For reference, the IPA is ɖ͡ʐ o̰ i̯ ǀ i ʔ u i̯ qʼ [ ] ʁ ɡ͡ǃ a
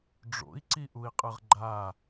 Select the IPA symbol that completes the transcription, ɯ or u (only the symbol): ɯ